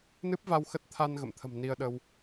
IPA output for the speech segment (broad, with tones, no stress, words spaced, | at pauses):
nɨ˦˥p̚va˧w xə˦˥t̚t̪ʰa˧n ɣə̰˧˨mt̪ʰə̤˨˩m ni˧ə̯ɗə˧w